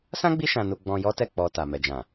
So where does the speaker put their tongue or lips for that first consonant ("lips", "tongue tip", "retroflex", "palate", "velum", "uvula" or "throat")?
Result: tongue tip